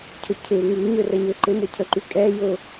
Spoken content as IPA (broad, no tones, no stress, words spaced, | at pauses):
cʰʊcʰɪu̯ ŋy ɲørəɲøǃɪ mʊcʰəǃykʼɛ jʊ